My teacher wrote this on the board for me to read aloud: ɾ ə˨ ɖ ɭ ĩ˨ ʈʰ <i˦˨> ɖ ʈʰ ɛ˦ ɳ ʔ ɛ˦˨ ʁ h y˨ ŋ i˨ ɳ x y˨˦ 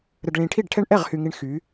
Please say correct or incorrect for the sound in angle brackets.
correct